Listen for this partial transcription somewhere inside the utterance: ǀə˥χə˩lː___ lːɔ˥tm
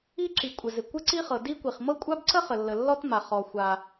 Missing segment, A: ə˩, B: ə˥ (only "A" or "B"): A